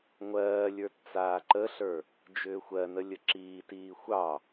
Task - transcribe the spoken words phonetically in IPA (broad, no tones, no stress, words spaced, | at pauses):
ŋʷɜːlʲə˞t t͡saːǃəɬə˞ | d͡ʒʏːxʷɜnə lʲəǁiːtiː xʷɑ